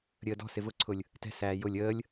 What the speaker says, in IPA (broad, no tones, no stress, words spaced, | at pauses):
ɾʲəːdɔ̤sɪ vʊǀʰʊlʲ | tɛ̤sæː jʊlʲ əːlʲ